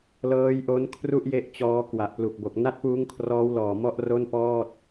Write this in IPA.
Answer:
l ɤː˦˥ j ʔ o˦˥ n kʰ r u˥˩ ʔ j e˦˥ ʔ t͡ɕ ɔː˦˥ k w a˨˩ ʔ p l u˨˩ k̚ b o˨˩ k̚ n a˥˩ t̚ p uː˦˥ ŋ kʰ r ɔː˦˥ w l ɔː˨˩ m ɔ˥˩ ʔ r o˥˩ n p ɔː˥˩ t̚

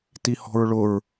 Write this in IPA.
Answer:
t i h ɔ̤ ɹ ɭ ʊ ɹ

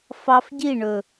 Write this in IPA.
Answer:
f ɑ˧ f ɟ i˦˨ ɳ ɵ˨

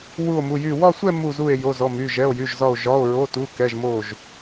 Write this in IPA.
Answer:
w u˥˧ o̯ m u˧˥˧ j y˥˧ w ɒ˥˧ sʷ ɛ˥˧ m u˥˧ z u˥˧ e̯ j o˧˥˧ z ɔ˧˥˧ m y˧˥˧ ʒ ɛ˧˥˧ o̯ j y˧˥˧ ʒ z ɒ˥˧ o̯ ʒ ɒ˧˥˧ o̯ ɹ o˧˥˧ t u˧˥˧ k ɛ˧˥˧ ʒ m o˥˧ ʒ

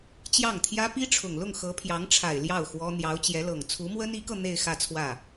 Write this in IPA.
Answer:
t͡ɕ j ɑ˥˩ ŋ t̪ʰ j ä˥ p i˥ ʈ͡ʂʰ ʊ˨˩ ŋ l ʊ˥˩ ŋ x ɤ˧˥ pʰ j ɑ˧˥ ŋ ʈ͡ʂʰ a˨˩ ɪ̯ l j ɑ˥˩ ʊ̯ x w ɔ˥ n̪ j ɑ˧˥ ʊ̯ t͡ɕ j ɛ˧˥ l ɤ˨˩ ŋ t͡sʰ u˧˥ m w ə˥ n i˧˥ k ɤ˧ n̪ e˥˧ ɪ̯ x ä˥˧ t͡sʰ w ä˥˩

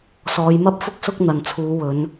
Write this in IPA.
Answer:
s ɔː˨˧ j m ɐ˥ p̚ f ʊ˥ k̚ s ʊ˥ k̚ n̪ ɐ˨ n t͡sʰ uː˨˧ w ɵ˨˧ n

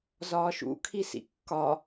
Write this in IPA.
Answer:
z ɒː ʃ ṵ kʰ i s ḭ kː ɒ

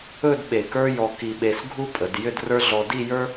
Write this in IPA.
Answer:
ɵ˥˧ d ɓ e˧˩ k ə˞˥ j ɔ˧ k i˧ ɓ e˧ s ɡʱ u˥ pʼ ə˩˧ d j ʏ˥˧ d r ə˞˥ ɮ ɔ˧ d i˥˧ j ə˞˥

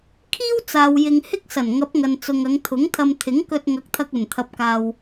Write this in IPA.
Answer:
kʰ iː˥ w t͡s aː˨ w j ɪ˨ ŋ h ɪ˥ k̚ s ɐ˨˩ n ŋ ɐ˨˥ p̚ ŋ ɐ˨ n t͡s ʊ˨ ŋ ɐ˨˧ ŋ t̪ʰ ʊ˨˥ ŋ t̪ʰ ɐ˧ m t̪ʰ ɪ˨˥ ŋ k ɵ˧ t̚ ŋ ɐ˨˥ k̚ t̪ʰ ɐ˧ k̚ ɵ˨˩ n t̪ʰ ɐ˨ p̚ k aː˨ w

